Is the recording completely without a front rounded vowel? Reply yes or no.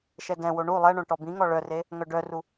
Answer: no